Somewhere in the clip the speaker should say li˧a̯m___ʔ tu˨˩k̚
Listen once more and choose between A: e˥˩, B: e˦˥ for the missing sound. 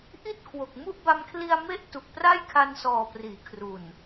B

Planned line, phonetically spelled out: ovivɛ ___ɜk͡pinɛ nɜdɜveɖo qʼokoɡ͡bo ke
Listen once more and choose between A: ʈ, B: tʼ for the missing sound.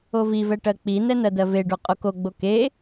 A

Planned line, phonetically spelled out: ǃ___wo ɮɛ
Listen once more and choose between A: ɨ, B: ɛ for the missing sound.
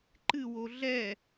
A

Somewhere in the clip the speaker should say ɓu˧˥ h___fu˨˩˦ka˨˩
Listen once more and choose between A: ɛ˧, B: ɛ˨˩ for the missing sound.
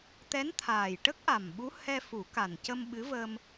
A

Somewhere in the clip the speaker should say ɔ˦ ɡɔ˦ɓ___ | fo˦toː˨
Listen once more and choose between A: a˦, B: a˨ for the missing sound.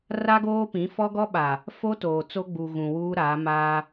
B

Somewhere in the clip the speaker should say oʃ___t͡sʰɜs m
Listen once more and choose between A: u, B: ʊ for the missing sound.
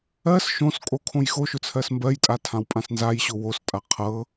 B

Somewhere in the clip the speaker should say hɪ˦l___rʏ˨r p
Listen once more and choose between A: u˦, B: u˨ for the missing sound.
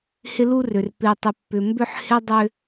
A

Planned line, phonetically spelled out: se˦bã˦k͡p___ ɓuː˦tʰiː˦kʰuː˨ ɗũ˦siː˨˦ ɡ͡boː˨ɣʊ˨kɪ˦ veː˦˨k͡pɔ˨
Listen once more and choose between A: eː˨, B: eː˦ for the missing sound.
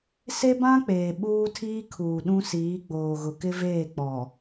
A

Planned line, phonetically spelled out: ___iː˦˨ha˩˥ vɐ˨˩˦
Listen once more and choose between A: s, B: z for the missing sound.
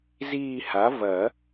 B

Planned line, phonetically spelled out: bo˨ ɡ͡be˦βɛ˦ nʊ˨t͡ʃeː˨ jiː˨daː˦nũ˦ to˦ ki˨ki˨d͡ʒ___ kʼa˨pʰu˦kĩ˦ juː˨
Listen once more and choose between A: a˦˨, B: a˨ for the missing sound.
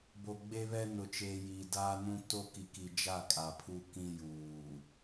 A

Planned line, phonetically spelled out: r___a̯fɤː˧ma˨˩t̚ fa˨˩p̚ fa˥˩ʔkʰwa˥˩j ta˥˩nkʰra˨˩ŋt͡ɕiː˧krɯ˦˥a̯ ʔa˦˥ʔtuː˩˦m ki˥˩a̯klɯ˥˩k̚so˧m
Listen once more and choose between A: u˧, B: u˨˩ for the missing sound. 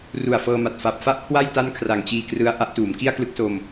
B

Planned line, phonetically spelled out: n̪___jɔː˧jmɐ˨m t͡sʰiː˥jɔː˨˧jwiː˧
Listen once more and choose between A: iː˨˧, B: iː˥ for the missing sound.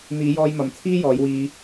A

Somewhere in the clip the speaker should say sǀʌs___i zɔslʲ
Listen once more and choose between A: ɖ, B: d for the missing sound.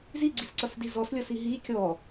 B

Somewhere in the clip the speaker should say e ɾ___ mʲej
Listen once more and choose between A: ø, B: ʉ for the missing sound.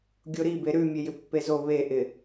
B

